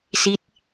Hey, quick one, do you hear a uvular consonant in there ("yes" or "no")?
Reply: no